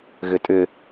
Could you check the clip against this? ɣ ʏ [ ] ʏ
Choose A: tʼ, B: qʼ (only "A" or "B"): A